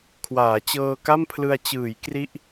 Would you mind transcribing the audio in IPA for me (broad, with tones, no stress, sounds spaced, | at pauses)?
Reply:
kʰ w aː˩˦ t͡ɕ ɤː˧ k a˥˩ m pʰ l ɯ˧ a̯ t͡ɕ ɯː˩˦ j k r i˦˥ ʔ